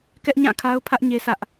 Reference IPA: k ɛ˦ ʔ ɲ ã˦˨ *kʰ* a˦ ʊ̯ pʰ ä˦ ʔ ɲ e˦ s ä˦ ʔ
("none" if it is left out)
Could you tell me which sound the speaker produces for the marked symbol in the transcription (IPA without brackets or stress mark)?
kʰ